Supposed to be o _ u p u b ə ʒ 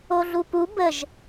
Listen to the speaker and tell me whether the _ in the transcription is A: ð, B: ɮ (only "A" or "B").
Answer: B